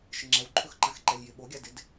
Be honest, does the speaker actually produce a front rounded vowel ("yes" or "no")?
no